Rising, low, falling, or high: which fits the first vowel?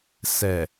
low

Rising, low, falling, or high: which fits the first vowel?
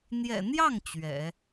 low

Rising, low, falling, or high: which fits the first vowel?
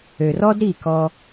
low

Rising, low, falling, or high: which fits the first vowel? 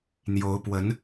rising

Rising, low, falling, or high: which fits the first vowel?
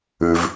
low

